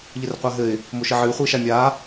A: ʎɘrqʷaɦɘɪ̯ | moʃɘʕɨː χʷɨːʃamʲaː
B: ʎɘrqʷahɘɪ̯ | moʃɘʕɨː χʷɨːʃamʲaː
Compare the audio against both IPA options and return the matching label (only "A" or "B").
A